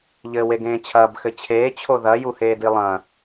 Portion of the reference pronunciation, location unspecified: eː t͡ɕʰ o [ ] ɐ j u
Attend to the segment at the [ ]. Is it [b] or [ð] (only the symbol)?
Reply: ð